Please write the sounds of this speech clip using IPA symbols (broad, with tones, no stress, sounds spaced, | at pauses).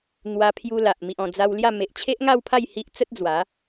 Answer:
n̪ w a˧ pʰ j u˧ l a˨ ʔ m i˨ ʔ ɔ̃˨˩ d͡z a˧ w l j a˥˧ m e˨ ʔ t͡ɕʰ e˦ ʔ ŋ a˥˧ w pʰ a˥˧ j h i˦ ʔ t͡s ə˦ t̚ d͡z w a˨˦